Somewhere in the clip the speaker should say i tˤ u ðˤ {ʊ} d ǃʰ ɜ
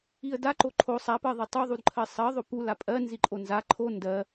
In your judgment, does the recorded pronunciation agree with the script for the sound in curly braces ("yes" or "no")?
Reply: no